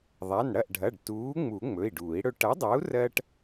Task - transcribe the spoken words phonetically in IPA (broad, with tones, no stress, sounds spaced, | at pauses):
ðˤ a˩˧˩ n ɽ ɐ˥˩ ʔ ɖʱ ɐ˩˧˩ ɖ t uː˨˥ ŋ͡m u˨˩˦ ŋ͡m ɵ˩˧˩ i̯ ɖ uː˨˩˦ i̯ ɽ ɵ˦ ʈ ɐ˨˥ dˤ a˨˥ u̯ r ɜ˦ ʈ